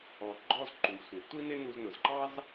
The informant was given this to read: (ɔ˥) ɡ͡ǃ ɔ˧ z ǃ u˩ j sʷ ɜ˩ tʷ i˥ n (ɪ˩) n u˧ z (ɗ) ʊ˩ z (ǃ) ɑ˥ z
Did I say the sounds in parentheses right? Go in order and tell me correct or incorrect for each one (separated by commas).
incorrect, incorrect, incorrect, correct